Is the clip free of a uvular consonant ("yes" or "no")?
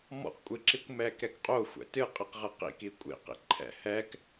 no